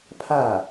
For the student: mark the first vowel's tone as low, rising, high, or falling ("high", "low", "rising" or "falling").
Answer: falling